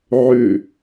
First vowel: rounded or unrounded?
rounded